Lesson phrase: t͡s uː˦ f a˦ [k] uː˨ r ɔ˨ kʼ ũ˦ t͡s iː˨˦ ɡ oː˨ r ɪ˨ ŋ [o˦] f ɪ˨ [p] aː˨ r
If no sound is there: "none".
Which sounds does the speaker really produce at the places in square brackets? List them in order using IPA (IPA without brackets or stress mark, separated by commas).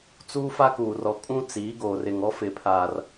k, ɔ˦, pʰ